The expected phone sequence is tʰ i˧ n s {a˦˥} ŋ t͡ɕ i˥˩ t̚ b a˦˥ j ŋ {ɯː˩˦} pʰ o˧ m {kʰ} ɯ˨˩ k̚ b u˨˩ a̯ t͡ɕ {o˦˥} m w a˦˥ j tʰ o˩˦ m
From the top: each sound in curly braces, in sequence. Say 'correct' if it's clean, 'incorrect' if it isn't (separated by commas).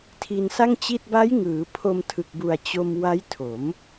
incorrect, correct, incorrect, incorrect